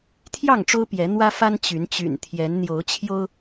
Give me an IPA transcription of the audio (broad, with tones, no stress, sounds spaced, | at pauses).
t̪ʰ j ɑ˥˨ ŋ ʈ͡ʂ o˦ ʊ̯ p j ɛ˨˦ n̪ w ä˦ f a˦ n t͡ɕ y˨˦ n t͡ɕ y̰˨˩ n t̪ʰ j ɛ˨˦ n n̪ j o˨˦ ʊ̯ t͡ɕʰ j o˦ ʊ̯